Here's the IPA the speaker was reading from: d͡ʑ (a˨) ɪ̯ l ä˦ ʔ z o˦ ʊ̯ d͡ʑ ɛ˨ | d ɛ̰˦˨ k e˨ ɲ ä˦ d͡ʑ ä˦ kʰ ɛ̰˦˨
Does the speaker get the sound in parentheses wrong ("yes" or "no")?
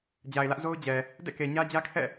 no